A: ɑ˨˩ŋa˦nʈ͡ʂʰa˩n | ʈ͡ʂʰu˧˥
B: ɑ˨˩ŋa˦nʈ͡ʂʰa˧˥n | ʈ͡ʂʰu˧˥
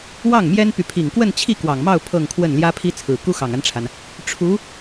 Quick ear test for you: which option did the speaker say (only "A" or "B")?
A